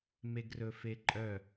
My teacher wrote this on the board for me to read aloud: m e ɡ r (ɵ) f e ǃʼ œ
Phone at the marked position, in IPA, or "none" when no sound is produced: ɵ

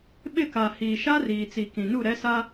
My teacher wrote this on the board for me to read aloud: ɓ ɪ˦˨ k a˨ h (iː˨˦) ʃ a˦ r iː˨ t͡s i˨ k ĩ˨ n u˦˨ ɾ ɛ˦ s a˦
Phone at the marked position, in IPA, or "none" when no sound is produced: iː˨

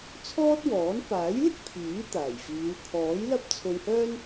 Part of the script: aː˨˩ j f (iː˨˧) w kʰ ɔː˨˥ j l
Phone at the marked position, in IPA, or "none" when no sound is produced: iː˨˧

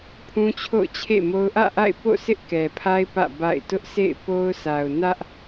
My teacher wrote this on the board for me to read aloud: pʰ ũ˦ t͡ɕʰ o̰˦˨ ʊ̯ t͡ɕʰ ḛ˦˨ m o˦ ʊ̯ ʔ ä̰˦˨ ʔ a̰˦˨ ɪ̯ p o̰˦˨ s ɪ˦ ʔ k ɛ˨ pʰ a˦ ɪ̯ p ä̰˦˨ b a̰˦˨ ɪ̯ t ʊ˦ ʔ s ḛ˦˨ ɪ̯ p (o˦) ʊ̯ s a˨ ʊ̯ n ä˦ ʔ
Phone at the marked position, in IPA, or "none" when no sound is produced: o˦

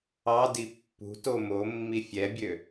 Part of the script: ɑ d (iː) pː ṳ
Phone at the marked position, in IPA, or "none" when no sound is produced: i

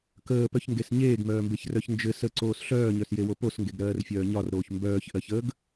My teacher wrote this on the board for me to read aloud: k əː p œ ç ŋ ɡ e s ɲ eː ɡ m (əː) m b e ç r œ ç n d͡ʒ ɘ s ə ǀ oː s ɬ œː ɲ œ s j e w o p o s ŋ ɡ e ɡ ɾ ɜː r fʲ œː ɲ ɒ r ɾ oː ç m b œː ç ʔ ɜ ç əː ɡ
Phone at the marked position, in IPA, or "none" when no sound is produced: œː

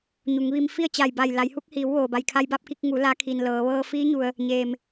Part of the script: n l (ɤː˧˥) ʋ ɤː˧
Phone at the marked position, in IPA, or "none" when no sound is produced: ɤː˩˧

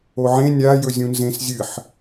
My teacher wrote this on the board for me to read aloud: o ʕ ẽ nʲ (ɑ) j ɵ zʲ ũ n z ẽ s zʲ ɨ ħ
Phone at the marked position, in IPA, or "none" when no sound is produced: a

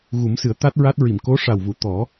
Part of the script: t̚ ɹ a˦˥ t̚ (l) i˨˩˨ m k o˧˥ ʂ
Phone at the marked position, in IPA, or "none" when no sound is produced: ɹ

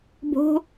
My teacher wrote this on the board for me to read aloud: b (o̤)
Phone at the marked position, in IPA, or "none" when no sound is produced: o̤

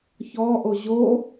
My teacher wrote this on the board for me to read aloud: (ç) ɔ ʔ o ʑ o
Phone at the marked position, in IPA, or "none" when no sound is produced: ç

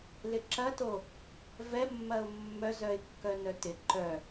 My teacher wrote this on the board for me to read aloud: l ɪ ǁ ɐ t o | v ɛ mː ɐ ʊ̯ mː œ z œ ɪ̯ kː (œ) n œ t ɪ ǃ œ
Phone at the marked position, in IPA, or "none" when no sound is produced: œ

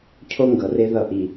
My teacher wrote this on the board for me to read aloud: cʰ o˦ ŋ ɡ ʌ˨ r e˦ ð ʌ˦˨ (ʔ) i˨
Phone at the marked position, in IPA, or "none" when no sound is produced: ʔ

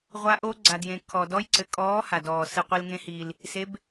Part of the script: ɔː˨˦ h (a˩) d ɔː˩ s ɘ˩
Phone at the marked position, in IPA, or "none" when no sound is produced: a˩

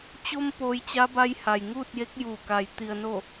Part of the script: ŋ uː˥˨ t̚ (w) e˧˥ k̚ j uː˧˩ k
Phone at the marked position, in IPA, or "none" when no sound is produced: j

